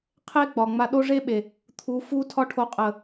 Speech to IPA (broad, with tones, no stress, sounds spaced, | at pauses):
qʰ e˦ ɡ͡b ɒ˨ ŋ͡m a˧ ɗ o˦ ʐ e˦ ɓ e˨ | t̪ʰ u˨˦ f u˦ tʰ ɒ˦ ʈʰ o˧ qʼ ə˨